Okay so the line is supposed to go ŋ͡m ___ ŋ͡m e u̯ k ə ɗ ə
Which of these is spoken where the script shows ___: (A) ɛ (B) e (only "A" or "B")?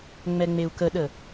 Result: A